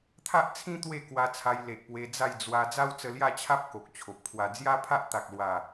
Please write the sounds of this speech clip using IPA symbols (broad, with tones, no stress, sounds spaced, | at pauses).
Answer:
t̪ʰ a˦ ʔ t͡sʰ ĩ˦ t̪ w e˥˧ k w a˧ t͡sʰ a˧ j l e˨ ʔ p w e˧ d͡z a˥˧ j d͡z w a˧ d͡z a˦ w t͡s ə˧ l j a˥˧ t͡ɕʰ a˦ p̚ k o˨ k̚ t͡ɕʰ o˨ p̚ kʰ w a˧ d͡z j a˦ pʰ a˦ ʔ t̪ a˨ k̚ l w a˨˩